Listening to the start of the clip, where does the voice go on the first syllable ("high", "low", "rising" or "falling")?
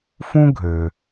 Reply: high